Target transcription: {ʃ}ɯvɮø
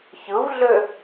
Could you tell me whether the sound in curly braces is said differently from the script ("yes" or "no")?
yes